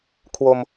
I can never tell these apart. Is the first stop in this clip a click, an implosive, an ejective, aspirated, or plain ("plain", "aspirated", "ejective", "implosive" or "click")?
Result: aspirated